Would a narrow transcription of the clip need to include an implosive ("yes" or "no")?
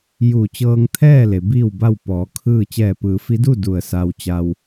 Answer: no